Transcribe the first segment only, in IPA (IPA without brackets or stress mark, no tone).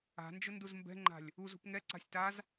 a̤